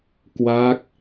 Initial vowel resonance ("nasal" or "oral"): oral